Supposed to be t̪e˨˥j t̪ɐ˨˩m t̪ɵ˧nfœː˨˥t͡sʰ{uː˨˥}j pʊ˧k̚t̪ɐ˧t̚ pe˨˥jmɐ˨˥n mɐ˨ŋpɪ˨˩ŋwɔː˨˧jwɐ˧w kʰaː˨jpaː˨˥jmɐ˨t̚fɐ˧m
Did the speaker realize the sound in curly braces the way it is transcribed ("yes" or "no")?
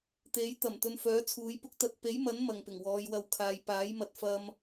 yes